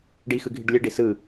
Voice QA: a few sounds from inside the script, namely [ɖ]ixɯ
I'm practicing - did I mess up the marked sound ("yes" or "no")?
no